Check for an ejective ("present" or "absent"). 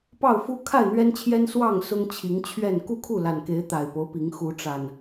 absent